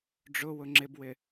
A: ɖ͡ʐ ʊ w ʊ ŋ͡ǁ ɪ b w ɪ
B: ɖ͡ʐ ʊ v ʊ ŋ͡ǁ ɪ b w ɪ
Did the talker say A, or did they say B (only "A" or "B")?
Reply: A